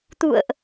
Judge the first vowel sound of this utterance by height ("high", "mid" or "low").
high